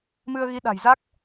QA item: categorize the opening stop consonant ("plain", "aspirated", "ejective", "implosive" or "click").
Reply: implosive